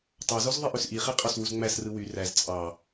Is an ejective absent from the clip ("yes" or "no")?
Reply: no